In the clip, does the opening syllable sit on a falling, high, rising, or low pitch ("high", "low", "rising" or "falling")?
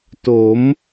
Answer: rising